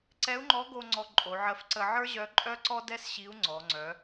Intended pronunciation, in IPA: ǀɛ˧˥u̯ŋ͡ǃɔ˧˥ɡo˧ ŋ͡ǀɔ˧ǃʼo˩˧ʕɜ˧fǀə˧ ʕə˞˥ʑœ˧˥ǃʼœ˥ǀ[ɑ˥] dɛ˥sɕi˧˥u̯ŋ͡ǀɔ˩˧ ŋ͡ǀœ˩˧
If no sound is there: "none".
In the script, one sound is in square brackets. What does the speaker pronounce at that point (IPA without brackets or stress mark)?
ɔ˥